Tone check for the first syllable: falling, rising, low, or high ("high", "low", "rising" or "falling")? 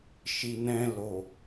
low